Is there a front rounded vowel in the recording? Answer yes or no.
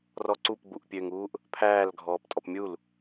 yes